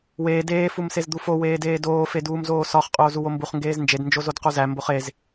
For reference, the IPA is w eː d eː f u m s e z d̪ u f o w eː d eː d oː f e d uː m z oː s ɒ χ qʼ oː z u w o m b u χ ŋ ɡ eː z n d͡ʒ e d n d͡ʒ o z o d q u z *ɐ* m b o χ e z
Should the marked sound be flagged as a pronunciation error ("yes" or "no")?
yes